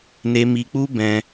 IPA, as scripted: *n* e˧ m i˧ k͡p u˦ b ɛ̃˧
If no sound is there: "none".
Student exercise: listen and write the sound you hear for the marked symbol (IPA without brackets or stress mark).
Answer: n